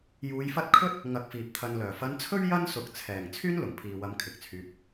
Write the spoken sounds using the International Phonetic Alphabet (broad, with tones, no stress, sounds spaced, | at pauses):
j uː˧ j f ɐ˥ t̚ kʰ ɵ˥ t̚ | ŋ ɐ˧ k̚ f iː˨ p̚ t̪ʰ ɐ˨ n l œː˨˩ f ɐ˧ n t͡sʰ ɵ˥ ɥ j ɐ˥ n s ʊ˨ k̚ t͡sʰ ɛː˨˩ ŋ t͡sʰ yː˥ n l ʊ˨˩ ŋ pʰ iː˨ w ɐ˨˧ m kʰ ɪ˨ k̚ t͡sʰ yː˧ p̚